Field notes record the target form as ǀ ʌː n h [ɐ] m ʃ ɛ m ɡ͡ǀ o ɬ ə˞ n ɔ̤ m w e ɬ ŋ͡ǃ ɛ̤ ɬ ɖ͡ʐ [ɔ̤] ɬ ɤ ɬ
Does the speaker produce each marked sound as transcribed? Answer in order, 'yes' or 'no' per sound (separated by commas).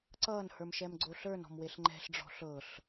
no, yes